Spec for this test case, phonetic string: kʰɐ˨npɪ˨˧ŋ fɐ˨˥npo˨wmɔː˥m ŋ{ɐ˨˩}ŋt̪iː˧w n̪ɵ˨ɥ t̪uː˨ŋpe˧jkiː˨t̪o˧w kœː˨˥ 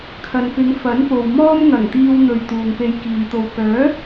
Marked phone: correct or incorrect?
correct